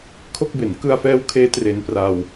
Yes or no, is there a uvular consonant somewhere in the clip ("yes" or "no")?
no